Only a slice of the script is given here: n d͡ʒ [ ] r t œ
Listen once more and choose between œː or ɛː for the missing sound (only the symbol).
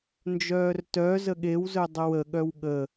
œː